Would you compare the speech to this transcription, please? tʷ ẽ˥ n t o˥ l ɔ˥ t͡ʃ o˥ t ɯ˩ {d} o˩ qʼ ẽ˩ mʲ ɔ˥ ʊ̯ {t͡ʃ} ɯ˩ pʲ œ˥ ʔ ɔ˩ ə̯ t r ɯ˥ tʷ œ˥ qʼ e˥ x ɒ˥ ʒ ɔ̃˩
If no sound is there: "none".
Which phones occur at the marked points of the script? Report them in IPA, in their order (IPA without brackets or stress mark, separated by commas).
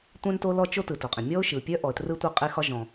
t, ʃ